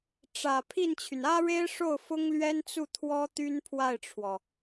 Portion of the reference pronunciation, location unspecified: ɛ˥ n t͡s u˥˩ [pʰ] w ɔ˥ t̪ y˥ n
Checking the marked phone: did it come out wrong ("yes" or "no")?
yes